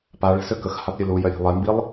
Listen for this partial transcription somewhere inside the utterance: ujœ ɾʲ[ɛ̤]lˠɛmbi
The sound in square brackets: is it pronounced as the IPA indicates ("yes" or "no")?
no